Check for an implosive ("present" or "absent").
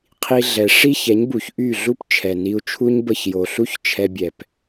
absent